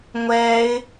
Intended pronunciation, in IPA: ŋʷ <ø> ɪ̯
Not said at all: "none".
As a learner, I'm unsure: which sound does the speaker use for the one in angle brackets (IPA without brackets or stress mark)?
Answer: ɛ